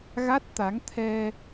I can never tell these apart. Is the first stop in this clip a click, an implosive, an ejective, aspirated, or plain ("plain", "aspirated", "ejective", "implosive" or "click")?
plain